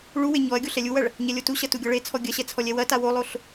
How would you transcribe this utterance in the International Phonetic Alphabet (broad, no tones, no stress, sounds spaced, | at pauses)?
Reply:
ɭ u w e ɲ ɔ ɐ̯ ɡʲ o ɬ ɛ lʲ u w ɐ ɭ | ɲ ɛ lʲ o t u ɕ ɐ t u ɡʲ ɔ ɭ e t͡sʰ ɔ ɡʲ ɐ ɕ ɛ t͡sʰ ɔ lʲ ɛ w ɐ t a w o lˠ o ɬ